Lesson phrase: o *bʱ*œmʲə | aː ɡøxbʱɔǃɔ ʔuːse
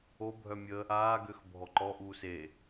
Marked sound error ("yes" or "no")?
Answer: no